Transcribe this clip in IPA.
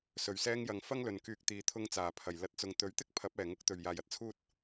s ɵ˨˩ ɥ s ɛː˧ ŋ j ɐ˨ ŋ f ɐ˥ ŋ l ɵ˨ n k yː˧ k̚ t̪ iː˨ t̪ʰ ʊ˧ ŋ t͡s aː˨˩ pʰ ɐ˨˩ j l ɐ˧ t̚ t͡s ʊ˨ ŋ t̪ ɵ˨˥ ɥ t̪ ɪ˥ k̚ pʰ ɐ˨˥ p̚ ɛː˨˩ ŋ ʊ˧ k̚ t̪ ɵ˨˩ ɥ j aː˨˩ j ɐ˥ t̚ t͡sʰ uː˥ t̚

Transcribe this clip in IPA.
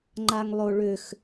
ŋ͡ǃ a ŋ lˠ o ɭ ʏ x

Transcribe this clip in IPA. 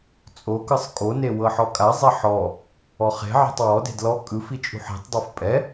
t͡sʼ o k ɯ sˤ kʼ o n e w ɤ ħ ɔ kʼ a zˤ ɛ ħ ɔ | ɔ χ e̤ ʕ e̤ tˤ w ɔ d e̤ d l ɔ kʼ ɯ f i t͡ʃʼ ṳ ħ i̤ tˤ dˤ o f pʼ ɛ

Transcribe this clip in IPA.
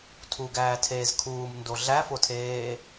tʰ u ɡ æː tʰ eː z kʰ uː m n d o ɮ æ f o tʰ eː

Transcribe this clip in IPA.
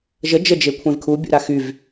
ʒ ə d͡ʒ ə d͡ʒ e kʷʰ ẽ v kʰ u bʲ ṵ ɾ a x y v

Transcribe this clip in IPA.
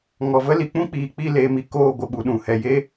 ŋ ɔ˨ v ə˦ l i˨ k͡p ũ˦ k͡p iː˨ k͡p i˦˨ l eː˧ m i˧ k oː˦˨ ɡʷ ə˧ ɓ u˧ ɗ ũ˨ h ɛ˨ j e˦

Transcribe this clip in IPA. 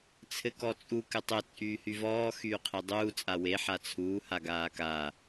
t͡sʰ ɘ k ɔ t͡sʼ u k ɘ tˤ ɘ t͡sʼ yː h y v ɔː x yː qʰ e dˤ uː t͡sʼ a w e ħ a t͡sʰ uː h a ɡ aː k a

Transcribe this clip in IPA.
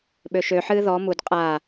ɓ ø ʃ ø ħ ɨː ð ɔ m u d qʼ aː

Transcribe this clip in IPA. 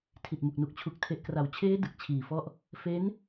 tʰ i˨˩ t̚ m u˨˩ k̚ n u˨˩ k̚ t͡ɕʰ u˨˩ k̚ tʰ e˨˩ ʔ k r a˩˦ w t͡ɕʰ eː˦˥ d ɯ˨˩ k̚ t͡ɕʰ iː˨˩ f ɔ˦˥ ʔ | f e˦˥ n

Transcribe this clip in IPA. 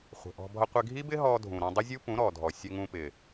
χʷ ə̤˨ ʔ ɔ̤˧ bʱ ʌ˧ qʷ ɪ˧ ɡʱ i˦ b ɪ˦ ɦ ɔ˧ dʱ ũ˨ ɾ ɔ̃˧ dˤ ʊ˦ zʲ u˦ p ũ˨˦ ɾ ɔ˨ dʱ ɔ˨ sʲ ə˧ ŋ ũ˧ p ɪ˨

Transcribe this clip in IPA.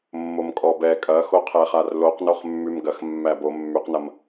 mː o m kʼ ɔ b ɛ kʼ ɐ x o qʰ ɛ χ a r l o q n o χ mː ʉ m ɡ ɐ x mː æ b o mː y q n ɐ m

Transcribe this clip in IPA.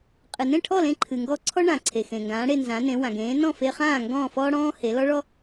qʼ ɨ˩ n ẽ˥˩ ʈʰ ɔ˥˩ l ẽ˧ ǃʰ ɨ˩ ŋ ɡ ɔ˧ ǀʰ ɔ˥ ɳ ã˩ ǀʰ e˩ x ẽ˩ ŋ ɡ ãː˩˥ ɽ e˧ n z ã˩˥ n ẽ˩˥ w ã˩ ɡ ẽː˩˥ n ɔ̃˥˩ f e˧ χ ãː˥˩ ŋ ɡ ɔ̃ː˥˩ f ɔː˥ ɽ ɔ̃ː˥ h e˩˥ l ɔ˥ ɭ ɔ˥

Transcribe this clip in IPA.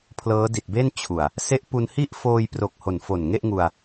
pʰ l ɤː˦˥ d i˨˩ t̚ b e˥˩ n t͡ɕʰ u˨˩ a̯ | s e˦˥ ʔ p u˧ n h i˥˩ ʔ f oː˧ j p r o˨˩ k̚ h o˨˩ n f o˨˩ n ŋ e˥˩ ʔ ŋ u˧ a̯

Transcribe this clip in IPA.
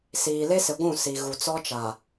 s iː˨ l e˦ s ɪ˨ ɡʷ ũ˦˨ s i˨ ɣ u˨ t͡s ɔ˦ t͡ʃ a˨

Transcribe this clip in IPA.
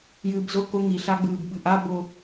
j ɨː b z ʊ k ʊ ŋ i ɬ a ɡ͡b ɨː b ɓ ɨ ʔ a b ʊ

